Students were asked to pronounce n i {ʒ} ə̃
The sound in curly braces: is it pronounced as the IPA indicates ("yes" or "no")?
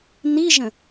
yes